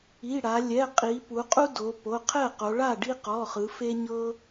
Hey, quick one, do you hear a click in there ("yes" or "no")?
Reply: no